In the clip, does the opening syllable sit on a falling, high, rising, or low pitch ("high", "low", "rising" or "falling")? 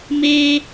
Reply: high